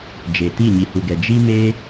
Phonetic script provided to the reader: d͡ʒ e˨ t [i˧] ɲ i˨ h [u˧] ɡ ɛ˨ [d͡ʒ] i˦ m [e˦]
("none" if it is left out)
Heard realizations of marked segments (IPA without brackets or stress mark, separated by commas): i˦˨, u˨, d͡ʒ, e˦